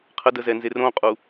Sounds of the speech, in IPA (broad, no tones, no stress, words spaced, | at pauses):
qʰədəzɛnzer õqʼu